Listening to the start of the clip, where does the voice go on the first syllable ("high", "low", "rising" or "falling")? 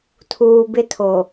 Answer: low